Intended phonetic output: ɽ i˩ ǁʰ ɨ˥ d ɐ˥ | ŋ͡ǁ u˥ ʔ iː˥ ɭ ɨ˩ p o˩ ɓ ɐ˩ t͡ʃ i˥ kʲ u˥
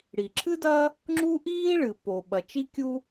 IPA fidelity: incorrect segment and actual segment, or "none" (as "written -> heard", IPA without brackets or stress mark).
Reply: none